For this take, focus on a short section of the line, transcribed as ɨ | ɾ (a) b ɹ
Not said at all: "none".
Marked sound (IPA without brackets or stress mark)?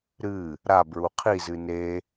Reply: a